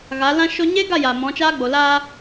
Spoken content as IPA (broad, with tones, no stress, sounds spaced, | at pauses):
ɣ a˨˦ l ã˦ ʃ o˧ ɲ e˦ ɡ a˦˨ j a˨ m ɔ̃˨˦ t͡ʃ aː˦ ɡ͡b o˨ l a˧